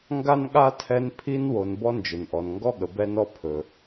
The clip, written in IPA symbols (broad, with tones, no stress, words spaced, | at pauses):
ŋɡa˥nɠa˥tʰɛ˦n pʰi˥nwo˨n bɔ˦nd͡ʒɵ˩nʔɔ˩n ŋɡɔ˦ɠə˩ bɛ˦nɔ˦ pʰɵ˩